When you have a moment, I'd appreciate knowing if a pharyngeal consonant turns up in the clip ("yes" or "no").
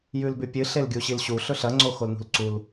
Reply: no